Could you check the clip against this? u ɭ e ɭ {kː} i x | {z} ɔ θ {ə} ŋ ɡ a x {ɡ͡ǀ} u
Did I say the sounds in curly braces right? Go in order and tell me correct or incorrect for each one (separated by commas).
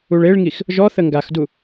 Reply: incorrect, incorrect, correct, incorrect